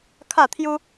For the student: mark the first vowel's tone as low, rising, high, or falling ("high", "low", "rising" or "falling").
falling